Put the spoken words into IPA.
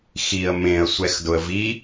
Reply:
x i ə̯ m ẽ ə̯ sʷ ɛ x d ʊ ə̯ v i

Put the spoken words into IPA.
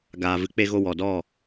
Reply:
ɡ aː˨ v ɨ˨˦ k͡p e˧ ɣ o˧ w ɔ˨ d ɔ˦˨

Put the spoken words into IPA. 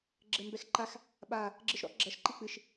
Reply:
ɡ͡ǁ ɘ m b ɛ x ǃ a x | ɓ a | ɡ͡ǁ ɨ ʃ ɾ ɔ̰ ɡ͡ǁ ɐ ʃ ǃ i k͡p ɨ ʃ

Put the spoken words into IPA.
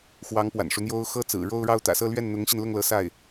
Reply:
x w ɑ˧˥ ŋ p w a̰˨˩ n ʂ u˦ n̪ j o˥ ʊ̯ x ɤ˥ t͡s ɹ̩˨˩ ɻ o˥˧ ʊ̯ ɻ ɑ˥˩ ʊ̯ t̪ ä̰˨˩ s ɤ˥˧ l ɥ ɛ˥˩ n n̪ ʊ˧˥ ŋ ɕ i˧ n l ʊ˥˩ ŋ l ɤ˧˥ s a˥˩ ɪ̯

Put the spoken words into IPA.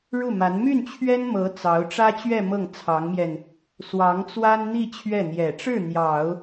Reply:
ɻ u˥˩ m a˧˥ n m y˥˩ n t͡ɕʰ ɥ ɛ˥ n m ɤ˧˥ t͡s ɑ˧˥ ʊ̯ ʈ͡ʂ ä˥ t͡ɕ ɥ ɛ˥˧ m ɤ˥˩ ŋ t͡sʰ ɑ˧˥ ŋ m j ɛ˧ n | s w ɑ˧˥ ŋ t͡s w a˥ n n̪ i˥˧ t͡ɕʰ ɥ ɛ˥˩ n̪ j ɛ˨˩ ʈ͡ʂ ɻ̩˥˩ n̪ j ɑ˨˩˦ ʊ̯

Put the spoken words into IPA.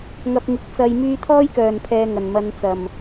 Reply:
ŋ ɐ˧ p̚ ŋ ɪ˨˥ k̚ t͡s ɐ˧ j m yː˥ t̪ʰ ɔː˥ j k œː˨˩ n pʰ ɛː˨ ŋ ɐ˨˩ n m ɐ˨˧ n t͡s ɐ˨˩ m

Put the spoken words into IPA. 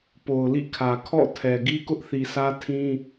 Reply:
p o˨ ʊ̯ l ḭ˦˨ kʰ ä˨ kʰ ɔ̰˦˨ tʰ ɛ˨ ɡ i˦ k ʊ˦ ʔ θ i˨ s ä˦ tʰ ĩ˦

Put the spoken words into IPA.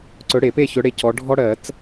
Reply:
ǀ ɵ˨˦ ɽ e˨˩˦ p e˥˨ ç ɵ˨˦ ɽ e˨˦ c ɔ˨˦ ɖʱ ɔ˦ ɽ ɜ˨˩˦ t͡s

